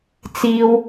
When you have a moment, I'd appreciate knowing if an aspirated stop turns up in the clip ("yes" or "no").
no